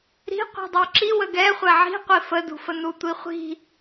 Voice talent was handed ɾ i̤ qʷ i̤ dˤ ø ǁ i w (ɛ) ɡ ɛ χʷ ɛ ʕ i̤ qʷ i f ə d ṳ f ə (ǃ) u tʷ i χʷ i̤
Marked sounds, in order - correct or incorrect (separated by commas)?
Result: incorrect, incorrect